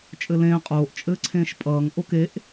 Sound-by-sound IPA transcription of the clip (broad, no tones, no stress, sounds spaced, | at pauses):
t͡ʃʼ ɘ l ẽː qʼ oː ʔ t͡ʃʼ ɘː ǀʰ ẽː ʃ pʼ ʌː ŋ ʔ o k e ʔ